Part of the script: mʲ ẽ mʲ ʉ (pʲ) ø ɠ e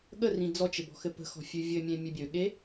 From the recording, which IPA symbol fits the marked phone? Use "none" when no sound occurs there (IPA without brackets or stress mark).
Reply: bʲ